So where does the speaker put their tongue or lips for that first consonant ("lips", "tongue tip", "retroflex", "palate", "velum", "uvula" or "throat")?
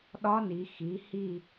tongue tip